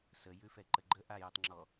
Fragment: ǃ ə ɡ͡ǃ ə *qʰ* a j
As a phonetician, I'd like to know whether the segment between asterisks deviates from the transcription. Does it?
yes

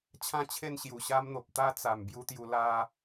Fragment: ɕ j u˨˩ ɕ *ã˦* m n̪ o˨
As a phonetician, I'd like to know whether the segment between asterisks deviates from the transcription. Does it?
yes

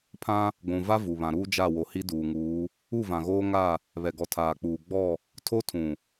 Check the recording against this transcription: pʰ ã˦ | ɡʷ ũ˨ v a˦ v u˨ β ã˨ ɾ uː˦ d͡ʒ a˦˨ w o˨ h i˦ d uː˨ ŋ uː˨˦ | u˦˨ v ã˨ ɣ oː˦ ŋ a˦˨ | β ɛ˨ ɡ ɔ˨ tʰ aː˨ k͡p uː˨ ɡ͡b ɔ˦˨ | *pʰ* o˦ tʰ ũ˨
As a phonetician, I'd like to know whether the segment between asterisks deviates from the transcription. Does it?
yes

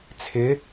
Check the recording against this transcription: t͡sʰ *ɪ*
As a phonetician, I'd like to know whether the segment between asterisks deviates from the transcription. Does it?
no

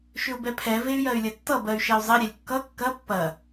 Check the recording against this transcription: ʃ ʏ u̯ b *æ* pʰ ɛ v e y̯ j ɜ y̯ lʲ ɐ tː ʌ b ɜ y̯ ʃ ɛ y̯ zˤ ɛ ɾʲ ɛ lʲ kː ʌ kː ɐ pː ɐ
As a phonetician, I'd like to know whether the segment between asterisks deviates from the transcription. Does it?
yes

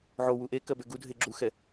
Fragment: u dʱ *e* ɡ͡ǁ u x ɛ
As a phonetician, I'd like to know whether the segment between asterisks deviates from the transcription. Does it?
no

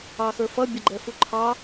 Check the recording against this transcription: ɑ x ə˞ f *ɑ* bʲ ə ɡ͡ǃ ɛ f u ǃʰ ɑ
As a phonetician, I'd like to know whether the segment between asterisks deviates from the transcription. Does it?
yes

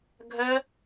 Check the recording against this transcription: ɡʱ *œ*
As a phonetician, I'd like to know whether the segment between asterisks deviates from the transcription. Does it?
no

